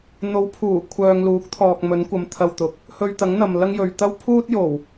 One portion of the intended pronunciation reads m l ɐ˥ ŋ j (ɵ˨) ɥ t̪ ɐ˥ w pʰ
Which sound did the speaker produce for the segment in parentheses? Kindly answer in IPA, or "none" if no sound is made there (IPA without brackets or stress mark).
ɵ˨